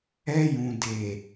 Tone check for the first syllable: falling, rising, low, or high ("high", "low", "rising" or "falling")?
high